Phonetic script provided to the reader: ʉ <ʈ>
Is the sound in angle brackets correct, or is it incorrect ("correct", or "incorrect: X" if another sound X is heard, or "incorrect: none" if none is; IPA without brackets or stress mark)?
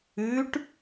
correct